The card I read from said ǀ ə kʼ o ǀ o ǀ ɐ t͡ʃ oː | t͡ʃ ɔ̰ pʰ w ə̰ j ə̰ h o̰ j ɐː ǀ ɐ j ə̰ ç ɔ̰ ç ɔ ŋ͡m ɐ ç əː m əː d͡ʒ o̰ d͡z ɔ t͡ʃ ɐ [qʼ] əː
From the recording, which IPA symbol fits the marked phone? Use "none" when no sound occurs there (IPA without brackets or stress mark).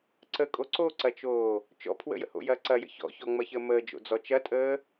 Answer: tʼ